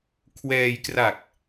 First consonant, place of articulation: velar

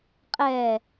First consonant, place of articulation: uvular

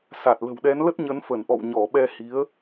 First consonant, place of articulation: alveolar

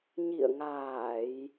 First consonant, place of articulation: palatal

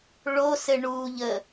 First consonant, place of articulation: retroflex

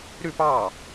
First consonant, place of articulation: alveolar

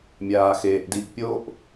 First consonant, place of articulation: labial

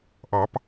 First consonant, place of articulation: glottal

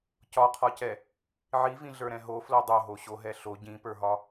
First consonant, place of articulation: palatal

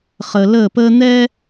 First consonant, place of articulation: uvular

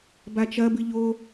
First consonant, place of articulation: labial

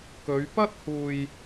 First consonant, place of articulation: velar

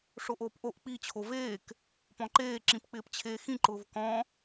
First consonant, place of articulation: retroflex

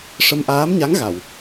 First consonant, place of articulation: retroflex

